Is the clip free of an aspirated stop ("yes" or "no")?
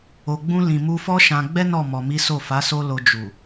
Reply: yes